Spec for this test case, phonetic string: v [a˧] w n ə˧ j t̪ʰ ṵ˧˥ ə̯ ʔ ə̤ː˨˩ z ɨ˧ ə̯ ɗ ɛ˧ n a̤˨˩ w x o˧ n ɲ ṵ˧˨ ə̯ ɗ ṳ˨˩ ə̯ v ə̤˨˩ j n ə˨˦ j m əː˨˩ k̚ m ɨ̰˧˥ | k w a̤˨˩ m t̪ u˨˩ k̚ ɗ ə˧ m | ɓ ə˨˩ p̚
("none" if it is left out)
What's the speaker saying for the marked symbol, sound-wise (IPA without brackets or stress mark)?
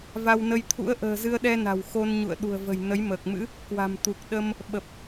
a˧